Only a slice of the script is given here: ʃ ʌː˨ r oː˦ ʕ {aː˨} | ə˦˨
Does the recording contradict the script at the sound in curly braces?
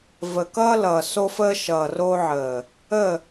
yes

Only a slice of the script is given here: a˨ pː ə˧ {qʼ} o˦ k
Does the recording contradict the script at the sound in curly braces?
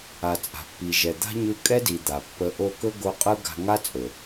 yes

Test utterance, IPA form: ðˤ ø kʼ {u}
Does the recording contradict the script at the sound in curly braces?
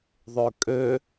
yes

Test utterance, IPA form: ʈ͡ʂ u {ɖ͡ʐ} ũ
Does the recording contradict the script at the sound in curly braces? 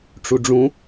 no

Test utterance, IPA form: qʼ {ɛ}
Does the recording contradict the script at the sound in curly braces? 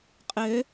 yes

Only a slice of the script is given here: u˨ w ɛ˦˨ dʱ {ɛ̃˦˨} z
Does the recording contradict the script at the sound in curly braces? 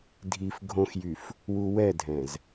yes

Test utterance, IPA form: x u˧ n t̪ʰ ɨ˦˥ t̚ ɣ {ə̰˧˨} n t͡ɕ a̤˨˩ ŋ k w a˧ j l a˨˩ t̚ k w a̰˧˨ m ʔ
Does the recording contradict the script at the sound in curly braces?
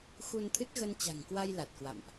yes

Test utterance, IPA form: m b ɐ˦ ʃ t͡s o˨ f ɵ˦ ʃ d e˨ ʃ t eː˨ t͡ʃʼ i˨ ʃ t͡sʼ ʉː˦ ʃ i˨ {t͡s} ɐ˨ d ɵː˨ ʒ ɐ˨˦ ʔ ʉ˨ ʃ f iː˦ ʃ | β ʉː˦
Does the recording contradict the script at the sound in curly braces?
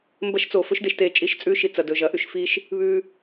no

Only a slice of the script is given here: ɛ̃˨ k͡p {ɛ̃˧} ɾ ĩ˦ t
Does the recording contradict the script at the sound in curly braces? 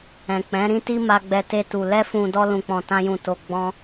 yes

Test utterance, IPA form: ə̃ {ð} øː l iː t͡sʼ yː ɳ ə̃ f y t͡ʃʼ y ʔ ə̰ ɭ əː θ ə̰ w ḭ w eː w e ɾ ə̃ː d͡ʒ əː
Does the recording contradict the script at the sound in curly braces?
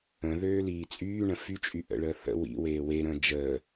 no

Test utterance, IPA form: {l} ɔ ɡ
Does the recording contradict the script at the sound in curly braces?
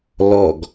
no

